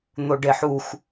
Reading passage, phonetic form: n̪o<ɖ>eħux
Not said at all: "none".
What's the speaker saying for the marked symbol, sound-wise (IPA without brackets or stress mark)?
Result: ɖ